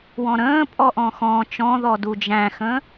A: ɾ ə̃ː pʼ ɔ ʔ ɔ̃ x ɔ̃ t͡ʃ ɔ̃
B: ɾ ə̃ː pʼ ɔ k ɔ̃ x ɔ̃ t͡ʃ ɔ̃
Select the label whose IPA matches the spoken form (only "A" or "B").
A